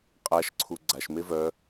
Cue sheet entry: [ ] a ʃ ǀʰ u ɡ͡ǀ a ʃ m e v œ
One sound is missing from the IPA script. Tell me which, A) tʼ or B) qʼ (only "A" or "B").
B